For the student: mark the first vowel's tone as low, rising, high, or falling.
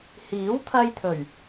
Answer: rising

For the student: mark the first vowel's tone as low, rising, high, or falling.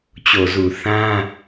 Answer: low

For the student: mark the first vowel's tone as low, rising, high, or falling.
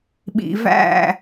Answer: low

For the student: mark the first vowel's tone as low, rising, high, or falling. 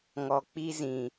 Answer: low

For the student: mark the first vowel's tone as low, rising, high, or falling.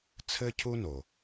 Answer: high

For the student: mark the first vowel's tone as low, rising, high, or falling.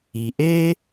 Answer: low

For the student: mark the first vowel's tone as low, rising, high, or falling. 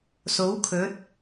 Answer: rising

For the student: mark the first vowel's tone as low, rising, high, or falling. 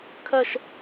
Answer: falling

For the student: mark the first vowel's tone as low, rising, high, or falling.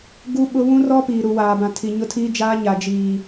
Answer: high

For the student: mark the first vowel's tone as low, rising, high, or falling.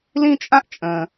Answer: high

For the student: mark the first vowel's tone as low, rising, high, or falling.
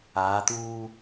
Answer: rising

